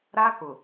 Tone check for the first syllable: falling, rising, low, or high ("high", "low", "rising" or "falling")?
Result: high